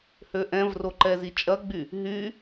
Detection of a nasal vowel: present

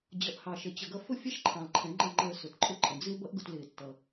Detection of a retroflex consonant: absent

